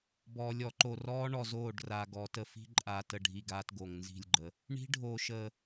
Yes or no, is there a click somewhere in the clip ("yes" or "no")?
yes